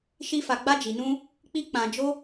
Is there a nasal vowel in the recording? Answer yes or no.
yes